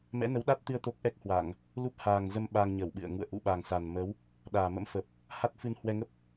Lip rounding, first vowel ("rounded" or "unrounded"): unrounded